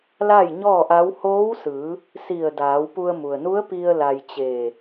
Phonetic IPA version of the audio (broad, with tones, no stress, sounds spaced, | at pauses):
l a˥˨ j ɲ ɔː˥˨ ʔ a˧˥ w h oː˧˥ w s ɯː˩˧ | s i˧˩ ə̯ d aː˩˧ w p u˧ ə̯ m u˩ ə̯ n u˧˥ ə̯ p i˧ ə̯ l a˧ j t͡ɕ eː˧˩